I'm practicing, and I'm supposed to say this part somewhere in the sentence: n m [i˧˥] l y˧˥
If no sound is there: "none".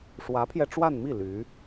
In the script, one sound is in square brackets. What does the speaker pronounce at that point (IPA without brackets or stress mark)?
i˥˩